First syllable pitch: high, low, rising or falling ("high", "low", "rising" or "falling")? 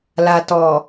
low